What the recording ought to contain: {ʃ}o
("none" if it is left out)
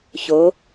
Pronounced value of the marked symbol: ç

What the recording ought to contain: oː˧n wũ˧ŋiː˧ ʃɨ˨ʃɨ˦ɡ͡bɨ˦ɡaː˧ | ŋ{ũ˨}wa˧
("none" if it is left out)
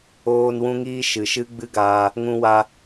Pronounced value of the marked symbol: ũ˧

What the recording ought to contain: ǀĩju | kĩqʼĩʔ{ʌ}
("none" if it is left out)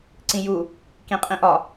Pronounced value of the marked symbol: ɒ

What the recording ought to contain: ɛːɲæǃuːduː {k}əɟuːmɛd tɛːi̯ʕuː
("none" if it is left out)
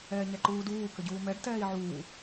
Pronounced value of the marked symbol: k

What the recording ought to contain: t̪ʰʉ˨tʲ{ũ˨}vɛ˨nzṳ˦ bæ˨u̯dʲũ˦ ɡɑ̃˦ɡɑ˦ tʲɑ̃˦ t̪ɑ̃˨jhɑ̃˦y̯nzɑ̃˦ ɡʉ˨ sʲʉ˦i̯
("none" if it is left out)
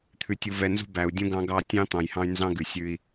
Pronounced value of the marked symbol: u˨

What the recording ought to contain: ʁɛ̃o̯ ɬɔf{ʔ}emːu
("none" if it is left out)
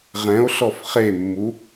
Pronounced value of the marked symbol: χ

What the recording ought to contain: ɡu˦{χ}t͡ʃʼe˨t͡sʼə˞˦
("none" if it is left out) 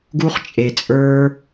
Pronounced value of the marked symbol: χ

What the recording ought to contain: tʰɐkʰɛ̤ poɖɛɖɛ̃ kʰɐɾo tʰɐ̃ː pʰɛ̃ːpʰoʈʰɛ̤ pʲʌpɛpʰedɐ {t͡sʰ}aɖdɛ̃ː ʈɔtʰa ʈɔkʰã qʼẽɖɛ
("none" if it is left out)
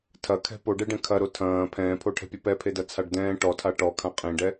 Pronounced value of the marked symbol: t͡sʰ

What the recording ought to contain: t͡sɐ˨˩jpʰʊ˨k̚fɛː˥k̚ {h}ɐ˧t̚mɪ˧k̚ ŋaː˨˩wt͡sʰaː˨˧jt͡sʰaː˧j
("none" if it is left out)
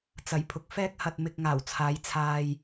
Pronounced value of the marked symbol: h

